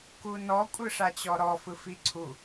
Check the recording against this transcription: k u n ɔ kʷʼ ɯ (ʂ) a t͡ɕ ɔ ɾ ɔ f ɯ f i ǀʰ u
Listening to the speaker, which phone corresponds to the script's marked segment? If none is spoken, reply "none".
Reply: ʂ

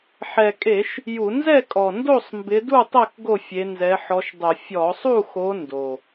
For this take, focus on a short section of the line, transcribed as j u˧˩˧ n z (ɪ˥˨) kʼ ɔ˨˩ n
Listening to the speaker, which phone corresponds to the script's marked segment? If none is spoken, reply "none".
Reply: ɛ˥˨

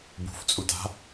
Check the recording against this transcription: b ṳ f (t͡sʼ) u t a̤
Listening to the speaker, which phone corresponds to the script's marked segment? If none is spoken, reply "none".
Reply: t͡sʼ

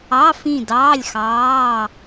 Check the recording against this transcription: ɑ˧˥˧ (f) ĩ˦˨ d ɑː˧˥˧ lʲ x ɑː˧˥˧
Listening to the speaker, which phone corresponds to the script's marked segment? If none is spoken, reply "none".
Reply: f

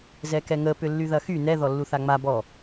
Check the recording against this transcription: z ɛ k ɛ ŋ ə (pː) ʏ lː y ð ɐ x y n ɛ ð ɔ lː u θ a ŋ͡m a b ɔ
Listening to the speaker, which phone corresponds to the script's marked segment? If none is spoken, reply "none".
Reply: p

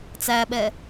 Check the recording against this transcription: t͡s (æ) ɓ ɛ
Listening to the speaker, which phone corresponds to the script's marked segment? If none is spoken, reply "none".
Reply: æ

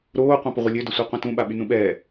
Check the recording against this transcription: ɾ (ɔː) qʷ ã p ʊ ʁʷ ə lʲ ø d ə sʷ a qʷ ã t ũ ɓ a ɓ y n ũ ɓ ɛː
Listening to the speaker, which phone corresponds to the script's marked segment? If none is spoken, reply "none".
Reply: oː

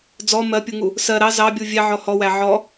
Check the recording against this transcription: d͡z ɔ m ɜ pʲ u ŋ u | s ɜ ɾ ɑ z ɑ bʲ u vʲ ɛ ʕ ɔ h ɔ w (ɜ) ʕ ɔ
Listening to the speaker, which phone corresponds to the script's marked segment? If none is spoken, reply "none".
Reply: æ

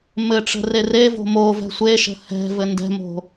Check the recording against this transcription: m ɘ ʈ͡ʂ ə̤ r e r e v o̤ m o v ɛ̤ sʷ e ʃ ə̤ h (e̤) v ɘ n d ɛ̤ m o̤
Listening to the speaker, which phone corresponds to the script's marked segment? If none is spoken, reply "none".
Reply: ɛ̤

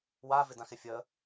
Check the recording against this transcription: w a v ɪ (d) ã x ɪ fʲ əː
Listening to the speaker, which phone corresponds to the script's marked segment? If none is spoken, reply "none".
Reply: d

